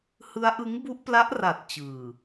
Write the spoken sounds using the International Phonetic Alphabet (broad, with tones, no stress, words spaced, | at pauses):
hɯ˦˥a̯ʔɯ˦˥ŋbu˦˥ʔpla˦˥ʔ ra˨˩t̚ t͡ɕɯː˨˩